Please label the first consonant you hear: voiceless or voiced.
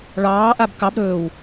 voiced